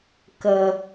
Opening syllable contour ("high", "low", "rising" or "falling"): high